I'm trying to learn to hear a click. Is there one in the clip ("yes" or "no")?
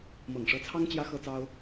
no